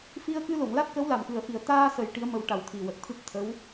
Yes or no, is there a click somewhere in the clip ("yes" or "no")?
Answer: no